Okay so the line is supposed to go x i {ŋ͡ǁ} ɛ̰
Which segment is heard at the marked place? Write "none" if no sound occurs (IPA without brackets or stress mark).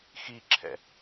ǁʰ